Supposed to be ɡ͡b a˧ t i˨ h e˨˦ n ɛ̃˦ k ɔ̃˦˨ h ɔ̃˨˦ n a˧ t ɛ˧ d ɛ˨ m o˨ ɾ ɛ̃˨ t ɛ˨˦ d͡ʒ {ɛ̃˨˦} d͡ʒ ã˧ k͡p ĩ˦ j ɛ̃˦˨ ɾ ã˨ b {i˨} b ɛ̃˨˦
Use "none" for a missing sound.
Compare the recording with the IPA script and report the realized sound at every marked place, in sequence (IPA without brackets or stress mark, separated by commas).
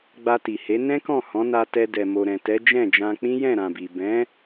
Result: ɛ̃˦˨, i˨